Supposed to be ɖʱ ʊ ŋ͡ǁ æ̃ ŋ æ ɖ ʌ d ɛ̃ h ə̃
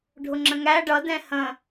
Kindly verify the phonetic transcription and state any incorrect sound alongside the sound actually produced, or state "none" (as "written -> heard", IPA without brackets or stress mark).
æ̃ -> ə̃